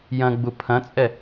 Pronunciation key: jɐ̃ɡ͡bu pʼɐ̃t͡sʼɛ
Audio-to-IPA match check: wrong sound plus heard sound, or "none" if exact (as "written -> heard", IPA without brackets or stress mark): pʼ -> pʰ